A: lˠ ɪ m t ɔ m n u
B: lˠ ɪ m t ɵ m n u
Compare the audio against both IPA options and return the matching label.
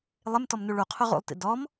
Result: A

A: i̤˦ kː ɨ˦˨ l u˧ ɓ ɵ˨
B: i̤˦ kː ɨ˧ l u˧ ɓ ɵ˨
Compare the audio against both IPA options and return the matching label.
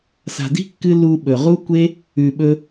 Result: B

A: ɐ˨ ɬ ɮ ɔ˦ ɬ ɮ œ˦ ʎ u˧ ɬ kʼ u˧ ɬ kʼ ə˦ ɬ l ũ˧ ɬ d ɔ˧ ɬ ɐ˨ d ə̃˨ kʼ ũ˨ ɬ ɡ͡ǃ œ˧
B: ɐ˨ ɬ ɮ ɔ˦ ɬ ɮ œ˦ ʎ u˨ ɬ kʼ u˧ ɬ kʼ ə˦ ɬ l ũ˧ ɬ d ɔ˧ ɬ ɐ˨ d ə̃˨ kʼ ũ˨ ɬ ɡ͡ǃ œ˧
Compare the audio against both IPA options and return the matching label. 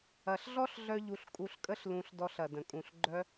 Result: A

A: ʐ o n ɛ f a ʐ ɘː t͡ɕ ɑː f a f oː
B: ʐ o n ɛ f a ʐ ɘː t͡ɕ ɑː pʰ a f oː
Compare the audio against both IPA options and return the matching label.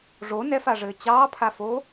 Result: B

